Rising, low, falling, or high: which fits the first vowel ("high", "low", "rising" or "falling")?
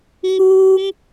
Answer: high